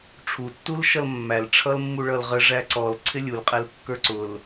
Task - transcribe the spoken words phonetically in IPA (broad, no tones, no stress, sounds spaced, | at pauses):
ʈ͡ʂʰ u tː u l ʃ ʌ l mː æ l ʈ͡ʂʰ ʌ l mː u ɭ ʌ l ʁ ə ʐ æ ǀ ɔ l ǀʰ ɪ lʲ u l qʼ ɛ l kː ə˞ ǀ ʊ l